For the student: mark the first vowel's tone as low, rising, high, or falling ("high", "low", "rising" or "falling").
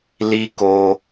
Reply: high